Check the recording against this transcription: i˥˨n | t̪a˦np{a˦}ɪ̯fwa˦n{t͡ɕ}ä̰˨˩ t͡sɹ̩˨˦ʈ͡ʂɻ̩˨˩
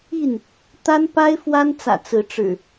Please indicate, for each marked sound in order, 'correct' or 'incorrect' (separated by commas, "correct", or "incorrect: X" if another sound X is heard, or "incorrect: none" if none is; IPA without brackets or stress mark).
correct, incorrect: t͡s